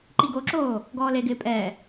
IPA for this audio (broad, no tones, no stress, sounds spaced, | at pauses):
ǃ i ɡ o ǁ oː | ɡ ɔː l e ɡ ɪː pʼ ɛː